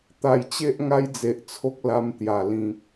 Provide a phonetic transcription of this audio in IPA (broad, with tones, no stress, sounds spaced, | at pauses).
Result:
t̪ a˨˩ j t͡ɕ e˦ ʔ ŋ a˦ j d͡z e˨ ʔ t͡sʰ o˦ k̚ l a˧ m t̪ j a˨˩ l ĩ˨ k̚